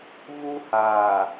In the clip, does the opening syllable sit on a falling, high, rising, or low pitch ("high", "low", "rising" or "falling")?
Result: high